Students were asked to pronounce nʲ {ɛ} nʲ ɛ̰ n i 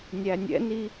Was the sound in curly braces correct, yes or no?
no